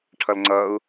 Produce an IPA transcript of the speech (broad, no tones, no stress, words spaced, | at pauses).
ʈʰʌlŋ͡ǀʌu̯